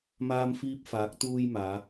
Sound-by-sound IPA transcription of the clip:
m aː˧ m f iː˧ p̚ f aː˨˥ k̚ t̪ uː˧ j m aː˨˧

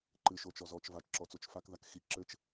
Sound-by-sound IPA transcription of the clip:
ǃ ɨ ʃ o t͡ʃ ɔ z ɔ t͡ʃ v a t͡ʃ ǁ ɔ t͡s o t͡ʃ f a k ð a k x i ǁ ɘ t͡ʃ

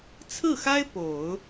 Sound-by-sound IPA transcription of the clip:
t͡sʰ ɹ̩˥˩ x a˥ ɪ̯ p o˨˩˦ ʊ̯

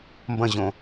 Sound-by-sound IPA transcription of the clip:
m b ɐ̃ ʑ õ

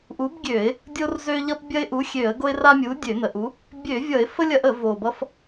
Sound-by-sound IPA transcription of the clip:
ʔ u˨˥ b ɡʲ ø˧˩˧ ɪ̯ | dʲ o˦ r z ø˦ ʎ ʌ˦ p bʲ ɐ˦ ɪ̯ ʔ u˨˥ xʲ ø˧˩˧ ə̯ ɡ o˦ ɪ̯ r a˦ mʲ u˨˥ dʲ ø˧˩˧ n ə˨˩ ʔ u˨˥ | bʲ ø˧˩˧ vʲ ʌ˧˩˧ ɪ̯ f ə˦ lʲ ɐ˦ ʔ ə˧˩˧ v o˨˩ b ʌ˦ f

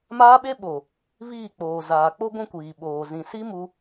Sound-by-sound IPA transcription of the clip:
m aː˦ ɓ e˦ ɓ o˨ | β iː˦˨ k͡p oː˨ z aː˨ k͡p o˦ ɡʷ ũ˦ kʷ iː˨ ɓ oː˨ z ĩ˨ s i˦ m u˦

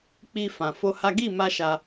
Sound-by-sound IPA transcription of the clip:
k͡p i˦ f ã˧ f o˦ h a˦ ɡ i˦˨ m a˧ ʃ a˧

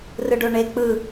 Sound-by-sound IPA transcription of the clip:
r ɯ ɖ o ɳ e k͡p ɯ

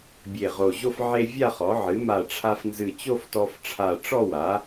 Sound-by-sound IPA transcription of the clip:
bʲ e˧˩ ʁ o˧˩ ʑ o˥˧ f ʕ e˧ vʲ a˥˧ χ ɔ˩˥ ʕ ɨ˩˥ m a˧˩ ʈ͡ʂʰ a˧ f n z ɨ˧˩ t͡ɕ o˥˧ f t ɔ˧ f ʈ͡ʂʰ a˧˩ ʈ͡ʂ ɔ˥˧ w a˩˥

